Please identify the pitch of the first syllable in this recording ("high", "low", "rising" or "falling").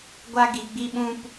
high